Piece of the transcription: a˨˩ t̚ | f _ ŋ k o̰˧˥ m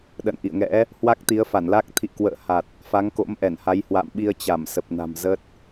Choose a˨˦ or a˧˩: a˨˦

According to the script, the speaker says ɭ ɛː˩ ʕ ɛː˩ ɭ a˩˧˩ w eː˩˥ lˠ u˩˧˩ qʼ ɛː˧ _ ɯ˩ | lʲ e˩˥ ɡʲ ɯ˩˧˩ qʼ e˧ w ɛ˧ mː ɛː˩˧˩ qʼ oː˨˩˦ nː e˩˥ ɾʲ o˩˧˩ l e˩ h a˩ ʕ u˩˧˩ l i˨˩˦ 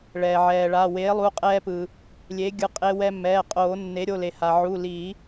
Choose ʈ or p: p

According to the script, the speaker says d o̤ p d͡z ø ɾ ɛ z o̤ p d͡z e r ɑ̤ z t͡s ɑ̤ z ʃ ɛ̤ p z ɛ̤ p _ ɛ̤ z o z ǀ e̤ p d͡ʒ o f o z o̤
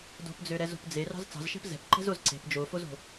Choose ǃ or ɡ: ǃ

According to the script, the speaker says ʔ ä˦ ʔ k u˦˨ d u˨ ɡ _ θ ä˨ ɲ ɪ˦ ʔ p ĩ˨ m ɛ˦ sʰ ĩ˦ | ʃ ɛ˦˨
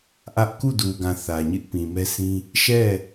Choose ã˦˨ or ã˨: ã˨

